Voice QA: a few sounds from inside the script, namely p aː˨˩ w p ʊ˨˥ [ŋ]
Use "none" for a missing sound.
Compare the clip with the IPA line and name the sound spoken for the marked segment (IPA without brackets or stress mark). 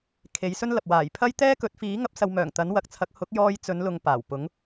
ŋ